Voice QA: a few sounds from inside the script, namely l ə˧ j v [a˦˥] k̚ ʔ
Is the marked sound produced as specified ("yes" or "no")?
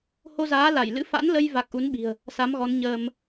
no